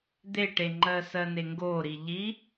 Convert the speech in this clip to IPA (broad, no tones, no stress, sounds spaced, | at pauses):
d̪ e ʈ e ŋ͡ǃ ɜ s ɜ n e ŋ ɡ o ɾ i ʎ i